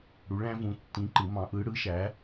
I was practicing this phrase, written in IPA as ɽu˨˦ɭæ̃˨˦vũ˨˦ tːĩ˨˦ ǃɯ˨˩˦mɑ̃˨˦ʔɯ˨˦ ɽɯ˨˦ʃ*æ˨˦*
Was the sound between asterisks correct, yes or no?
yes